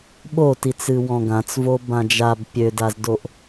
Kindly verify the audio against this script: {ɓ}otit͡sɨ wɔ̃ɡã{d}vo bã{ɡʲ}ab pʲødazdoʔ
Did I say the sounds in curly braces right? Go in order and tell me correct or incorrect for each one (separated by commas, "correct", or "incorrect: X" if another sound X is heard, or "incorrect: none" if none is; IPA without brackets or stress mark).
correct, incorrect: t͡s, incorrect: d͡ʒ